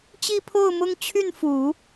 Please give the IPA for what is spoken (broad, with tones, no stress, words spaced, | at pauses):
t͡ɕi˥˧pʰo˥˩ʊ̯mʊ˥ŋ t͡ɕʰy˥˩nfu˨˩˦